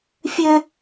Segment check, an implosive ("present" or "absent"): absent